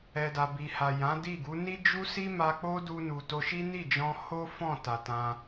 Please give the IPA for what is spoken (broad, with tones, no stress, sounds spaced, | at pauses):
ɛ˨ d a˨ b i˨ h a˨ j ã˨˦ d i˦˨ ɡ u˨˦ n i˦ d͡ʒ u˦ s i˦ m a˧ k͡p o˦ d u˧ n u˨ t o˧ ʃ i˦ n i˦˨ d͡ʒ ɔ̃˧ h o˦ f ɔ̃˦˨ t a˨ t ã˧